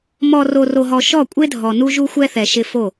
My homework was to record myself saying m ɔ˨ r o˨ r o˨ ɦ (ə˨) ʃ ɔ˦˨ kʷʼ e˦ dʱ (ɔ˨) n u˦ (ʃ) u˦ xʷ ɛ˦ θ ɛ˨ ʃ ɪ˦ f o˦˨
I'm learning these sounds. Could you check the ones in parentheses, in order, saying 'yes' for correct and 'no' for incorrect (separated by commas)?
no, yes, no